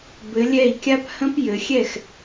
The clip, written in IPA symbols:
b ɘ˩˧ lʲ ɛ˧˩ i̯ kʲ a˦ p h ə̃˦ p j ɘ˩˧ xʲ ɛ˥˩ x

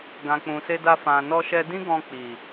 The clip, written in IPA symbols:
ɡ ã˨ k͡p ũ˨ s e˧ d a˧ f ã˨ n ɔ˧ ʃ ɛ˧ d ĩ˦ ɡ ɔ̃˧ k͡p i˨

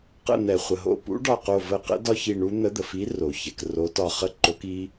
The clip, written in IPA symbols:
q ə̰˧˩ n̪ ɛ˩ χʷ ə˩ ɦ o̰˧˩ p ṵ˨˥ ɖ ɒ˧˩ q o˧˩ v ə˧˩ q ə̰˨˥ d ɒ˦˥ ç i˧˩ ɳ u˦˥ n̪ ə˨˥ d̪ ə˩ f i˨˥ r o˩ ç ɛ˩ k r o˨˥ t ɒ˧˩ χ ə˦˥ ǃ o˨˥ k i˦˥

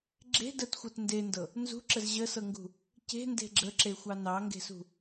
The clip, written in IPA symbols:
ɡ͡ǁ e̤ d ə t xʷ ɤ t n d e n d ɤ | n z ṳ ǁ ə z ʑ ə s ɤ ŋ ɡ ṳ | c e̤ n d e̤ ɡ͡ǁ ə ǁ e xʷ ɑ n ɑ ŋ ɡ e̤ s ṳ

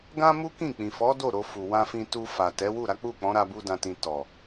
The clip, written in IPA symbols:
ɡ ã˦ m u˦ k ĩ˦˨ k͡p ĩ˨ f ɔ˨˦ d o˦˨ ɾ o˧ f u˨ w ã˧ f ĩ˧ t u˧ f a˨ t ɛ˨˦ w u˦˨ ɾ a˨˦ k͡p u˦˨ k͡p ɔ̃˨˦ ɾ a˧ b u˧ d ã˨ t ĩ˨ t ɔ˨

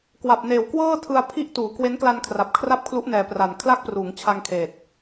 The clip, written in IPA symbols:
k w a˨˩ p̚ n eː˨˩ w k w ɤː˥˩ tʰ ɯ˧ a̯ pʰ i˦˥ ʔ t uː˩˦ k w e˦˥ n k l a˧ n kʰ r a˨˩ p̚ kʰ r a˥˩ p̚ kʰ l u˦˥ ʔ n ɛː˨˩ p r a˨˩ n kʰ l a˥˩ k̚ p r uː˩˦ ŋ t͡ɕʰ a˧ ŋ kʰ eː˨˩ t̚

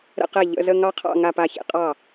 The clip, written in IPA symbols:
ɾ ə̰˥˧ q ɛ˥˩ ʎ ə̰˧˥˧ z ə˥˧ ŋ ɑ˥ qʰ ɑ̰˥˧ ŋ a˥˧ p a˥˩ ç ḛ˥˧ qʼ ɑ˥˩

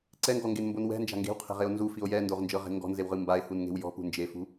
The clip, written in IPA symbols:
ǀ ɛ ŋ ɡ ɔ ŋ ɡ e n m b o n w ɛ̤ n d͡ʒ a̤ ŋ ɡ e̤ w qʰ ɛ̤ ʁ e o̯ n z u f i o̯ j ɛ n d o ʁ n d͡ʒ ɤ ʁ e̤ ŋ ɡ ɔ̤ n z e w ʁ ɯ m b a e̯ h u n ŋ e̤ w j ɔ̤ p ṳ n d͡ʒ e f ṳ

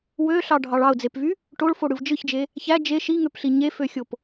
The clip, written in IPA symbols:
w ø ɬ ɑ ɖʱ ɑ ɭ ɑ ʊ̯ d͡z e p v y | ʈ o ɭ f o ɽ ɯ v d͡ʒ ɯ ç d͡ʒ e | ç æ d͡ʒ e ʃ i ŋ ø p ɬ i ɲ e f ø xʲ o p

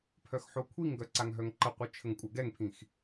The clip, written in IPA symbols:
pʰ œ x ħ o kʷʰ i ŋ ɡ œ ǀ a ŋ ɦ œ ŋ ǃ ə qʷ œ t͡ʃʰ ə ŋ kʷʼ œ ɡ ɛ ŋ pʰ ĩ x

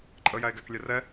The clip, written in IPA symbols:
ǃʼ ə j æ e̯ ɡ æ k lʲ ɛ r ɛ

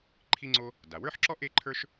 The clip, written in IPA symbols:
ǃʰ i˥ ŋ͡ǀ o˥ | d a˩ w ə˞˥ ħ ǁ ɔ˥ ʔ e˥ ǃʰ ə˞˥ ʃ

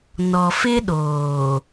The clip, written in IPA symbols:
n ɔ˨ f ɪ˦ ɗ oː˨

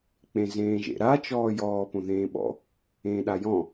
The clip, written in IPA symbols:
k͡p ẽ z ẽː ʒ ḛ ɾ a t͡ʃ ɔː j ɔː p õ ð ẽː ɓ ɔ̰ | ẽː ɗ a j ɔ̃

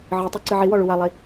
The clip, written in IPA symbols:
ʕ ɨ tˤ a ǀ ɨ ʕ i w ɔ ɭ u w a lˠ i

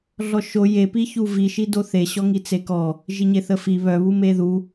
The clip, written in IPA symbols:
ɮ ɔ ʃ o j e p i ç u v i ʃ i d o θ e ɕ ɔ ŋ i t͡s e k ɔ | ʒ i ɲ e θ ə f i β œ β u m e ð u

